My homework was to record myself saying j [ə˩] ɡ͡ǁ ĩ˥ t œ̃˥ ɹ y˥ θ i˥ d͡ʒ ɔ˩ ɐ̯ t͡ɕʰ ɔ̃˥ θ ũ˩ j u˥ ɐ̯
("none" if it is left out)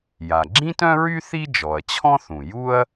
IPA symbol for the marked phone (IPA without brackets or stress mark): a˩